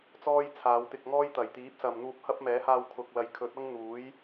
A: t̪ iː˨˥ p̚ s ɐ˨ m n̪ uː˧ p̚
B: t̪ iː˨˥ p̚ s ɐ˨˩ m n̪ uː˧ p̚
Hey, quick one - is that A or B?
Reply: A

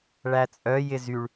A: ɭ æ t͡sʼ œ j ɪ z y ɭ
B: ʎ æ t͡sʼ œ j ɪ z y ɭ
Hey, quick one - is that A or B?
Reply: A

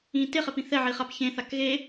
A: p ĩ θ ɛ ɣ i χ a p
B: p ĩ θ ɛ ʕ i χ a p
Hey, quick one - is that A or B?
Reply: B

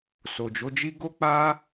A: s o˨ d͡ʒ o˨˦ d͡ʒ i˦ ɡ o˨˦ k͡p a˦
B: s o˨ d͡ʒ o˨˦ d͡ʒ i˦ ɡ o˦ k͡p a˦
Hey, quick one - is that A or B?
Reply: B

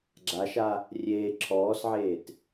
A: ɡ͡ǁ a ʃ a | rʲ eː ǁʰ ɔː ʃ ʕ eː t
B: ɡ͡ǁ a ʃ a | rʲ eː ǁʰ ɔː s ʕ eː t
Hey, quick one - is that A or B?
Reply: B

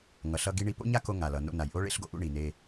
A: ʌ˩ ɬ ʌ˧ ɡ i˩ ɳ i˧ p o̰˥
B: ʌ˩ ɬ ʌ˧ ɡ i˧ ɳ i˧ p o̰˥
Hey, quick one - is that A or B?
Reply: B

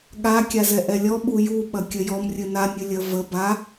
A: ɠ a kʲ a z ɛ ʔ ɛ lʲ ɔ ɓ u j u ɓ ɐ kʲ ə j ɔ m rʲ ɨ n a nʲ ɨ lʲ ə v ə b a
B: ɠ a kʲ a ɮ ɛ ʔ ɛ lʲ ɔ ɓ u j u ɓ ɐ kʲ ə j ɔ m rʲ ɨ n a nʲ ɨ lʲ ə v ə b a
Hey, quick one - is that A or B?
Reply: A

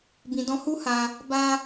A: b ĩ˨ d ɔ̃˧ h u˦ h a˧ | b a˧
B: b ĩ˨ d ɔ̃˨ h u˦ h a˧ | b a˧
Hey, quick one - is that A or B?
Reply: A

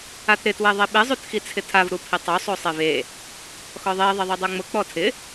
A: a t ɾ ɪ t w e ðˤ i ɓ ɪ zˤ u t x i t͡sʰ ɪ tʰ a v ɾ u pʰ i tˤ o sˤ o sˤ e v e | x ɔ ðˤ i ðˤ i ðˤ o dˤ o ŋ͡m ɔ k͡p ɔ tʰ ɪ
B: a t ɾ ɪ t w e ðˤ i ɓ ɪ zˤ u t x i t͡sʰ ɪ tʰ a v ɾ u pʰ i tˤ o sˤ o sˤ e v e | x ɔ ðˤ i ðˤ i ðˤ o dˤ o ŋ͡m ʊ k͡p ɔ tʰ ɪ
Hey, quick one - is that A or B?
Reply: B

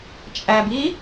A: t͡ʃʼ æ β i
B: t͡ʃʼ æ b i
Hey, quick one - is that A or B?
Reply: B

